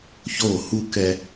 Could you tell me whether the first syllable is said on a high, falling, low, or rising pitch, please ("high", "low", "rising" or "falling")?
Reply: falling